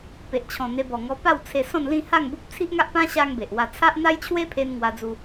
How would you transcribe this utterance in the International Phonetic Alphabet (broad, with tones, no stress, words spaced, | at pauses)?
pe˨ʔt͡ɕʰɔ̃˨˩n̪e˧ bɔ˨˩ŋɔ˧ pa˥˧w t͡sʰe˧sɔ̃˥˧nlĩ˥˧ ha˥˧ŋbu˦p̚ t͡sʰi˦ʔŋa˦ʔpã˦ɕa˧ŋ be˨ʔwa˧ t͡sʰa˦ʔ n̪a˦jt͡ɕʰwe˦pʰe˧n ŋwa˧d͡zu˧